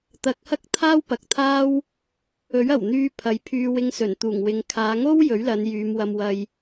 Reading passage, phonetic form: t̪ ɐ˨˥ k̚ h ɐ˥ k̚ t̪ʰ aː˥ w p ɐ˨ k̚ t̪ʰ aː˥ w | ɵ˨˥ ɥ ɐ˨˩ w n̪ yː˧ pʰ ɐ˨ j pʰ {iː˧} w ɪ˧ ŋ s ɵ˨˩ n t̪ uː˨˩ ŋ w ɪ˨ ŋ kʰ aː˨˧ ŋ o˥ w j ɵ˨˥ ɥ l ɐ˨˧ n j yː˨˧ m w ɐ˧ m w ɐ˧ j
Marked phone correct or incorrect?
incorrect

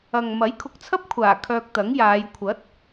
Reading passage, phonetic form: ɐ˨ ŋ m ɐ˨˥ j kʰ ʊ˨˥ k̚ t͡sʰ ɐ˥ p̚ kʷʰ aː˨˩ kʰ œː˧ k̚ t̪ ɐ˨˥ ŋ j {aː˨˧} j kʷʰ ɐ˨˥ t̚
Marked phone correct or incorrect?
correct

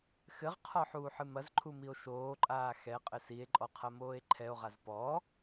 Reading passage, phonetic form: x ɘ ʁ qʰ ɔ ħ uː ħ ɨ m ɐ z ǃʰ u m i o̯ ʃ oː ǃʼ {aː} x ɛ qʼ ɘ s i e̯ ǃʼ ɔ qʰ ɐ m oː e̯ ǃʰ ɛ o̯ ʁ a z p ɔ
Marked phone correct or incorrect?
correct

